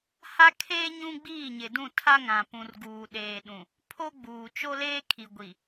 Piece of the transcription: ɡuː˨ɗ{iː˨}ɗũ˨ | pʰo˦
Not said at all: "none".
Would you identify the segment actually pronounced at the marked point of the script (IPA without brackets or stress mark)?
eː˨